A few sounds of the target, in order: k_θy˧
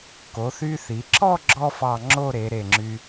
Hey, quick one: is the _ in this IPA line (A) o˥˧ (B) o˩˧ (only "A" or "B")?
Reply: B